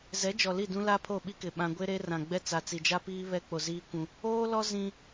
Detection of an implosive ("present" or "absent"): present